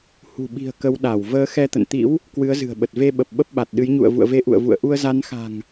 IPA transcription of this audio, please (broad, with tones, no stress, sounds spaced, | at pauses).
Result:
h ṳ˨˩ ɓ i̤˨˩ ə̯ k ə˨˦ w ɗ a˧˩ w v əː˨˦ x ɛ˧ t̪ ə̰˧˨ n t̪ ḭ˧˥ w | k w ɨ˨˦ ə̯ z ɨ̤˨˩ ə̯ ɓ ə˨˩ t̚ v e˧ ɓ ə˨˩ p̚ ɓ ə˦˥ p̚ ɓ a˨˩ t̚ ɗ ɨ˨˦ j ɲ ṵ˧˨ ə̯ v ṵ˧˨ ə̯ v e˨˦ ʔ ṵ˧˨ ə̯ v ṵ˧˨ ə̯ ʔ u˧ ə̯ z a˨˦ n x a̤˨˩ ŋ